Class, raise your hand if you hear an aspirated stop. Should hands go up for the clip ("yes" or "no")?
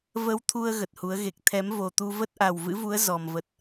yes